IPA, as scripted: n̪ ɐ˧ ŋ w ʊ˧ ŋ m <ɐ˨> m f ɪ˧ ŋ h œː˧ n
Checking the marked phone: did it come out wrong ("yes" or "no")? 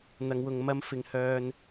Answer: yes